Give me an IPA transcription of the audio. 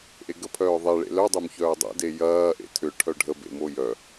ʔ e ɡ ə pʰ œː ðˤ e ɭ ḛ l œ dˤ ø m ç œː dˤ ḛ d e j ɐː ʔ ḛ tʰ ʏ ʈʰ œ ɖʱ ə b ḛ m o j œ

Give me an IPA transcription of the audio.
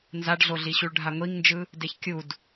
n z a ɖ ɮ o ɮ i ɕ u ɭ ɖʱ a ŋʷ i ŋ n d͡ʒ ɯ | d e ç kʲ u d

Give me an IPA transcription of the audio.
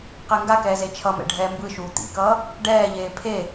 q ɛ ŋ ɡ a k ɛː z e t͡ʃʰ ʌ m ɛ̰ ɖʱ ɛː m b ɯ ʃ uː t̪ ḭ k ʌː | ɖ ɛː ʎ eː pʰ e

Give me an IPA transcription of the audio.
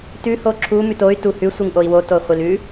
t ʉ h o ǁʰ u m ʉ t o y̯ t u h ʉ sʷ i ŋ ʔ o i̯ w o t o χʷ i l ʉ

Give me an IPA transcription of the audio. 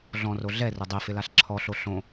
ɮ ɔ̃ r o ɮ ɛ r ʊ dˤ e f ɪ l a ɬ ǁʰ ɔ ɬ o ɬ õ

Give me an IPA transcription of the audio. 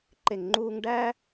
ǃ e˨ ŋ ŋ͡ǃ uː˧ ŋ ɖ æ˦

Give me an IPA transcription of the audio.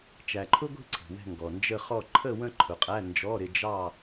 t͡ʃ æ˨ ǃʰ ʊ˥ ɡʷ i̤˥˧ ǀʰ i̤˨ w ɛ̤˥˧ ŋ ɡ ɔ˨ n d͡ʒ ə˥˧ χ ɔ˥˧ ǃʰ ə˥˧ w ə̃˥˧ ǃʰ ʊ˨ qʼ æ˧˥˧ n d͡ʒ ɔ˧˥˧ ɾ ɪ˥˧ d͡ʒ ɑ˥˧

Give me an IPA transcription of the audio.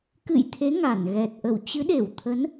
k ɨ̰˧˨ j t̪ʰ e˨˦ ŋ a˧˩ n ɣ ɛ˨˩ t̚ ʔ ə˧˩ w t͡ɕ ɨ˨˦ ɗ e˧˩ w t̪ʰ ə˨˦ n

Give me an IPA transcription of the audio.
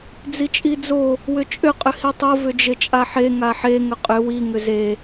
d͡z i t͡ʃʼ i d͡z o | w ʏ t͡ʃʼ ʏ qʼ ʏ h i tˤ o v ʏ d͡ʒ e t͡ʃʼ a ħ e ŋ a ħ e ŋ ʏ qʼ ʏ w i ŋ ʏ z e

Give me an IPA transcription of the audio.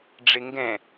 ɖ͡ʐ ɪ ŋ ɡ ɛ̃

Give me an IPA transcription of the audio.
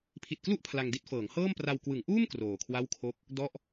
pʰ i˨˩ t̚ k l u˥˩ ʔ pʰ l a˧ ŋ d i˥˩ t̚ f ɤː˩˦ ŋ h ɤː˥˩ m p r a˧ w k w ɯ˩˦ ŋ ʔ uː˥˩ m k r oː˨˩ kʰ w a˥˩ w kʰ o˥˩ k̚ | d ɔ˥˩ ʔ

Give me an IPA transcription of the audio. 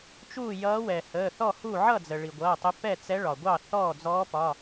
t͡ʃ uː˥˨ j ʌː˧˥ w ɛ˩ h əː˩˧˩ θ ɔ˥˨ h u˥˨ ʕ ʌ˥˨ d͡z ə˩ ɭ i˩ ɡʷ ʌː˩˧˩ tˤ ə˧˥ p ɛ˥˨ t͡s ɛ˧˥ ɭ ɒ˩ ɡʷ ɑ˥˨ θ ɔː˥˨ d͡z ɔː˧˥ p ɒ˩˧˩

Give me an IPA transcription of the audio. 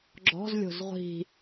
ɡ͡ǁ ɔ̤ z lʲ o̤ z ʁʷ i̤

